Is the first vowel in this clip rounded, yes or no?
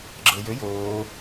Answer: no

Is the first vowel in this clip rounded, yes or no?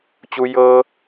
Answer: yes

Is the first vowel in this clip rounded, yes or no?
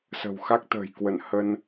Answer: no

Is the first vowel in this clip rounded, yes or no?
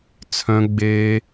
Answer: yes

